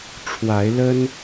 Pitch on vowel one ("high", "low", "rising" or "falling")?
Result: rising